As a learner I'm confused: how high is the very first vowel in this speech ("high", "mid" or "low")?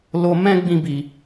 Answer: mid